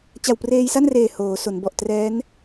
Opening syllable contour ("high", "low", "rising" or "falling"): low